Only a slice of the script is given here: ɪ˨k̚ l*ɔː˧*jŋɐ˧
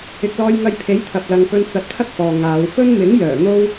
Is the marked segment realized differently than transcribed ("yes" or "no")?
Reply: no